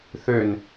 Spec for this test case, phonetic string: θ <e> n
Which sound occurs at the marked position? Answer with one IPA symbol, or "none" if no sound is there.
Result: ø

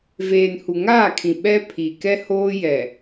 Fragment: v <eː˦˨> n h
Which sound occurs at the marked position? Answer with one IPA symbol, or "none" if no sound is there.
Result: eː˨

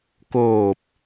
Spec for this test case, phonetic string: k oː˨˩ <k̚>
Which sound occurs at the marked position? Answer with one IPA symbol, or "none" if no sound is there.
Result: p̚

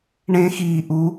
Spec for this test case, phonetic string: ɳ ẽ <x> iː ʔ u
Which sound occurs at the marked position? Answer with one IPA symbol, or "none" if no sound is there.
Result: x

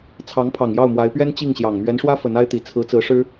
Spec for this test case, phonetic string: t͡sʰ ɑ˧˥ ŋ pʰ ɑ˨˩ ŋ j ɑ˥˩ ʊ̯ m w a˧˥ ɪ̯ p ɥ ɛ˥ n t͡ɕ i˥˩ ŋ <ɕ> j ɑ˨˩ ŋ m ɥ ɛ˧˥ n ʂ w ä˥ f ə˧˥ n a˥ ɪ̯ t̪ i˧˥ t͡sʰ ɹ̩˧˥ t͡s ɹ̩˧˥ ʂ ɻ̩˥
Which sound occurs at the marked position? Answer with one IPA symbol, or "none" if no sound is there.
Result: ɕ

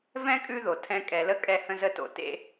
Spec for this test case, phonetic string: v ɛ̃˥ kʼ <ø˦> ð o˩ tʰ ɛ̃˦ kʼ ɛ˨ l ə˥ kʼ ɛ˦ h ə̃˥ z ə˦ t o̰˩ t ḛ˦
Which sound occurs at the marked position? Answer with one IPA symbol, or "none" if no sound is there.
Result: ʉ˦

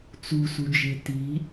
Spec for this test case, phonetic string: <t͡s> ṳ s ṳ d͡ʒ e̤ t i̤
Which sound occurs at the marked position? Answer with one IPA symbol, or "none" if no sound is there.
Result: t͡s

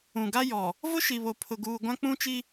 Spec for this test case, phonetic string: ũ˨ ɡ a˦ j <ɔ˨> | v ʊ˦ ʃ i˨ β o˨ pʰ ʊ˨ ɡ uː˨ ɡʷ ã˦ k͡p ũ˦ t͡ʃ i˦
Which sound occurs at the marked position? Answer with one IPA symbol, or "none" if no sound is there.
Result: ɔ˨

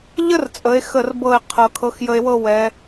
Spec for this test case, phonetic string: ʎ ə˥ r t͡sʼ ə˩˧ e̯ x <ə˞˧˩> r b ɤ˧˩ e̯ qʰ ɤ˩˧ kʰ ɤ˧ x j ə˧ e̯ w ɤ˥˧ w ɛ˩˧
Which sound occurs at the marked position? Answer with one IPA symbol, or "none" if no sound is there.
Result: ə˧˩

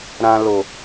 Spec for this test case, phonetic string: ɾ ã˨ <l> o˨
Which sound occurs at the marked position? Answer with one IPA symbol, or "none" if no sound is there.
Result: l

